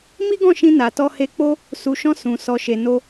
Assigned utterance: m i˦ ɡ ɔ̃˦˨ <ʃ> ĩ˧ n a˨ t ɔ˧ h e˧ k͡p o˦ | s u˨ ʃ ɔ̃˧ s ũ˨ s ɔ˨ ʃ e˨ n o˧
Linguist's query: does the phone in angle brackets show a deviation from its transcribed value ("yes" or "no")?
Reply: no